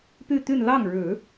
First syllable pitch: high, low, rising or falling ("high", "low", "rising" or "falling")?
falling